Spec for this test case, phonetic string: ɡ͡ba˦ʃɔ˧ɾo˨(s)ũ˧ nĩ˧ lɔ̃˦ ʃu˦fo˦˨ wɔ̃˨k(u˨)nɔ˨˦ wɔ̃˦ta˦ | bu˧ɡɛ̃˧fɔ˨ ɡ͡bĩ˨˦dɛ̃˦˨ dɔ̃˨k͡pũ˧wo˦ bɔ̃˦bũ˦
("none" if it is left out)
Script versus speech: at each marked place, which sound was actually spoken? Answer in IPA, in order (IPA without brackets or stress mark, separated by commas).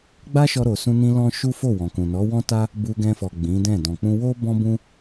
s, ũ˨